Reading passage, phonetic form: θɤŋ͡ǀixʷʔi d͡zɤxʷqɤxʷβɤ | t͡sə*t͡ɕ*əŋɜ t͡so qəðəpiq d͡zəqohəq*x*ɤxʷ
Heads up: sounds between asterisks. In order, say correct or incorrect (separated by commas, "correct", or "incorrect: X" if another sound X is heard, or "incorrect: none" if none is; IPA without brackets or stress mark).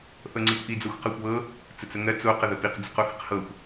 incorrect: t͡s, incorrect: h